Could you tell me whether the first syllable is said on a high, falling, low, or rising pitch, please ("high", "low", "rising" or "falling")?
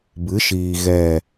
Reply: rising